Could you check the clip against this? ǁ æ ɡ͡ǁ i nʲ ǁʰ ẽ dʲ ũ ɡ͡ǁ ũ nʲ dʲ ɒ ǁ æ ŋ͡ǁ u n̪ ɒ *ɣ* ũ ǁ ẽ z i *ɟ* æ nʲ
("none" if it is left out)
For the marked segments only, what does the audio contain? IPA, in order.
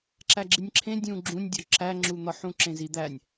ħ, d̪

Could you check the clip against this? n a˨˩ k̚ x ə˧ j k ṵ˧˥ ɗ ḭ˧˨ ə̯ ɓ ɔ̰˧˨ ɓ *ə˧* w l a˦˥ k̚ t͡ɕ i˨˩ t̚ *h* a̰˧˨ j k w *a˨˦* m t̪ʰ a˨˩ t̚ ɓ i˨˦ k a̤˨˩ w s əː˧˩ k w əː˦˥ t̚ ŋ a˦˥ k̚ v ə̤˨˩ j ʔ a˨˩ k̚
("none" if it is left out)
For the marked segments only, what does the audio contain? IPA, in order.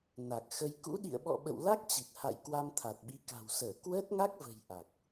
ə̰˧˨, h, a˧

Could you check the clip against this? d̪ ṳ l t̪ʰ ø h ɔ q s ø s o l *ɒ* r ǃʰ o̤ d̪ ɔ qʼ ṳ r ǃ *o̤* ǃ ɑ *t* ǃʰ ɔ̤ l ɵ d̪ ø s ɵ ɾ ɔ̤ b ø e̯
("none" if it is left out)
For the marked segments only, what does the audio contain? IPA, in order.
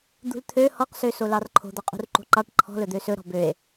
ɑ, o̤, ʈ

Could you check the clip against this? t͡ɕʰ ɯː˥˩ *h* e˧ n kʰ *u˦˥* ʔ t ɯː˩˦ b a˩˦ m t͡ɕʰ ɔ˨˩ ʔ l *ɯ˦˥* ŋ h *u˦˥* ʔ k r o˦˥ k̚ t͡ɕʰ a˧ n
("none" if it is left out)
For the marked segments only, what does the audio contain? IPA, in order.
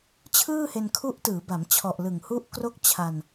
h, u˦˥, ɯ˨˩, u˦˥

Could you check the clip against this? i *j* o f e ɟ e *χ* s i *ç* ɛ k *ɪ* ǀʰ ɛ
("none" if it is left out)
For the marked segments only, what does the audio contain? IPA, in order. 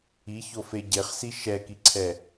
ç, χ, ʃ, i

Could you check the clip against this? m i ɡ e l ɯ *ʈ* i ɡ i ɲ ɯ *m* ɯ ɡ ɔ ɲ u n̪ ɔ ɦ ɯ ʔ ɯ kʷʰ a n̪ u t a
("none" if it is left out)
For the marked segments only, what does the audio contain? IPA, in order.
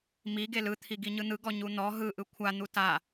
t̪ʰ, n̪

